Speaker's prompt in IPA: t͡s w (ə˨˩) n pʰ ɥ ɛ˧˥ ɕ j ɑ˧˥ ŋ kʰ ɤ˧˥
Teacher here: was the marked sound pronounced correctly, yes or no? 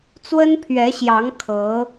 no